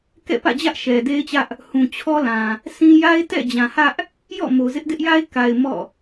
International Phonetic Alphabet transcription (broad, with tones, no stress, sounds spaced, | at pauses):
k ɛ̰˦˨ p ä̰˦˨ d͡ʑ ä˦ ʔ ʃ ɛ˨ d e˦ ɪ̯ t͡ɕ ä˦ ʔ | h ũ˨ t͡ɕʰ ɔ˦ l ã˨ | s ĩ˦ j a˦ ɪ̯ t ɛ̰˦˨ d͡ʑ ã˨ h ä˦ ʔ | j ɔ̰˦˨ m o˨ z ɪ˦ ʔ d ɪ˦ ʔ j a˦ ɪ̯ k a˨ ɪ̯ m ɔ̰˦˨